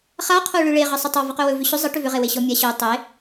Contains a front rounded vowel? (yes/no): yes